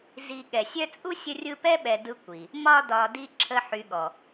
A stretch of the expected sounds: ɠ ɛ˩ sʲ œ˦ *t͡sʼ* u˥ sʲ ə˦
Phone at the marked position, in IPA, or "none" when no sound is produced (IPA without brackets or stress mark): t͡sʼ